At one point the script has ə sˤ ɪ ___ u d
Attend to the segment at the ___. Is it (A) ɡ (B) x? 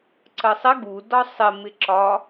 A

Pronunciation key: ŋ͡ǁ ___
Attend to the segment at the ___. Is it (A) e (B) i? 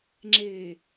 A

